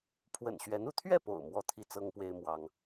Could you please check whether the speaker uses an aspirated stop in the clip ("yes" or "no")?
yes